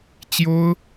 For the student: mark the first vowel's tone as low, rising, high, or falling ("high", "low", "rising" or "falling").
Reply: high